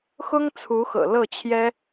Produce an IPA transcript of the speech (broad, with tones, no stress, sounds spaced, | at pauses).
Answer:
x ʊ˥ ŋ t͡sʰ u˧˥ x ɤ̰˨˩ l ɤ˥˩ t͡ɕʰ j ɛ˥